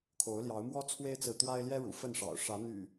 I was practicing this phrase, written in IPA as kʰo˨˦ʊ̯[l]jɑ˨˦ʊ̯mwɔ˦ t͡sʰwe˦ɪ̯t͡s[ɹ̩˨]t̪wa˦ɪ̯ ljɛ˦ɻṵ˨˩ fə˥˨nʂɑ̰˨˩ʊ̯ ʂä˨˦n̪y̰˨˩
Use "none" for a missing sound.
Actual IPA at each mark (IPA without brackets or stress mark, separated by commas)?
l, ɹ̩˨